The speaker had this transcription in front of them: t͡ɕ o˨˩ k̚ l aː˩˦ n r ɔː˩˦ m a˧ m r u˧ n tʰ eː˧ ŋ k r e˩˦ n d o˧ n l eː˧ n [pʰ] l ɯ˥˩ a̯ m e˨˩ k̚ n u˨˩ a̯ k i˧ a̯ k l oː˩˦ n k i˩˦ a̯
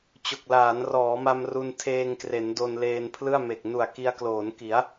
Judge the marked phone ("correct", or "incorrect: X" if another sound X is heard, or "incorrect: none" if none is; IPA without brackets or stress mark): correct